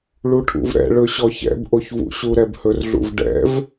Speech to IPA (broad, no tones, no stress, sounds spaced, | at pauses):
ɭ u ʈʰ ṵ v ɾ ɛ̰ ɭ ɵ ɕ ɔ ç ɛ̰ b ʔ o ç v ṵ ɕ u ɾ ɛ b h ɵ r ɮ ṵ v ɖ ɛ̰ v